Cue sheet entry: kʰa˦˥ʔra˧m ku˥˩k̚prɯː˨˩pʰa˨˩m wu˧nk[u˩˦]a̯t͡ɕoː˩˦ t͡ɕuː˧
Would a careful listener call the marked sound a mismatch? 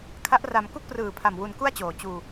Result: yes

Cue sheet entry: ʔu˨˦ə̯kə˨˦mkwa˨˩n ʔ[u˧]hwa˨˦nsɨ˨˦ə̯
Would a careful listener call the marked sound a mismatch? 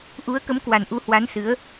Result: yes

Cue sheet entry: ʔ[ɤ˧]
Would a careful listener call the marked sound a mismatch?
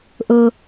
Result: no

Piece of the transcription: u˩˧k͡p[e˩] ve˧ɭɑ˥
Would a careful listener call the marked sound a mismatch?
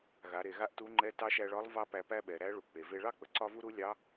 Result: no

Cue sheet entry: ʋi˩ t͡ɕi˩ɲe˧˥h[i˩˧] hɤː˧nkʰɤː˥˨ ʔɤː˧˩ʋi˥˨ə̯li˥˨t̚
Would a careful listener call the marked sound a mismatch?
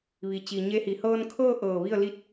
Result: no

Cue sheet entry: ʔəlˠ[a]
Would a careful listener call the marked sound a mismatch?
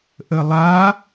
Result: no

